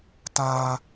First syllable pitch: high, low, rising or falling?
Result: high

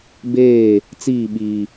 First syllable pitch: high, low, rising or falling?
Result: falling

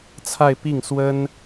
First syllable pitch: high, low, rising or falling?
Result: falling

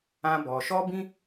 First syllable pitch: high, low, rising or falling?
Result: high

